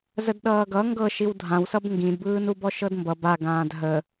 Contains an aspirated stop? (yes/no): no